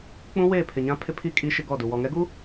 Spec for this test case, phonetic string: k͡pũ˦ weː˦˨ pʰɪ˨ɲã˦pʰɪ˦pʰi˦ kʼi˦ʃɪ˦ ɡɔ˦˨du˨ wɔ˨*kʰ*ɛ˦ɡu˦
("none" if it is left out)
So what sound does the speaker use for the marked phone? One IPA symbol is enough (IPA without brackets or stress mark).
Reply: ŋ